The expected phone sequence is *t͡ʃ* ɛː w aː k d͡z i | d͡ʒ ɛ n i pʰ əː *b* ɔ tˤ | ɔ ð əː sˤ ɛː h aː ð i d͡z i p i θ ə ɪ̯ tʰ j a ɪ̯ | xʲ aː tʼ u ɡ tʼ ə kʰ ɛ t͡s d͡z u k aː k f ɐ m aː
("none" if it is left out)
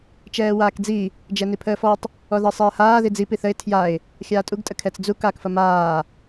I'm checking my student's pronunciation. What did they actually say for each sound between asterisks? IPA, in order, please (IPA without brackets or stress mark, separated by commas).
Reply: t͡ʃ, f